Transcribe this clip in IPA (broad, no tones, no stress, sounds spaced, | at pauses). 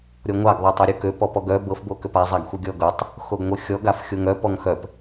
ɾʲ ɔ ŋʷ a ɡ ðˤ o tˤ œ ɾʲ o k ø p ɔ p ɔ ɡ œ b ɤ f b o k ø p a zˤ a ɡ xʷ ɤ ɡʲ ɔ ɡ ɤ tˤ | x o ɡ ŋʷ ɤ xʲ ɔ ɡ a f xʲ o ŋ œ p ɔ ŋ x œ p